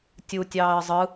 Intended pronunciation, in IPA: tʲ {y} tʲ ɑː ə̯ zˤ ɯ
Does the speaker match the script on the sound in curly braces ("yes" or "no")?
no